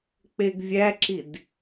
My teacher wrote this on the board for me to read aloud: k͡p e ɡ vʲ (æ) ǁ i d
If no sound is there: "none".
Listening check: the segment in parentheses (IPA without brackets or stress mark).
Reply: æ